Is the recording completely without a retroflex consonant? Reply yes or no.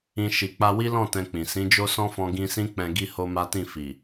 yes